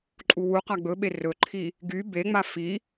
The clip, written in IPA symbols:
ǃʼ u w u q a ɡ͡b ɵ ɓ e r ɵ ǃʰ i | ɡ y b e ŋ͡m a f i

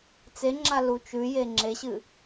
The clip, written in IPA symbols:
t͡s e ŋ͡ǁ a l u t͡ʃ ʉ j e ŋ͡ǁ e ɕ ɨ

